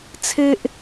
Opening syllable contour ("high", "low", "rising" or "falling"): high